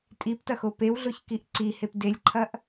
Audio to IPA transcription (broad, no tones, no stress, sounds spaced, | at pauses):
tʼ i p t ɐ x o p e w ɮ o ç k i ʔ ǀ i h e p d e lʲ ǃʰ ɐ ʔ